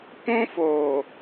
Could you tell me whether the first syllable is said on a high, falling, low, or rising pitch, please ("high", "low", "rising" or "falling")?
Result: high